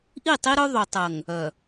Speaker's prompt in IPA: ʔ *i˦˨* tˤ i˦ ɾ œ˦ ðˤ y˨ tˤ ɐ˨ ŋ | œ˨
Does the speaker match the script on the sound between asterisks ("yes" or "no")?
yes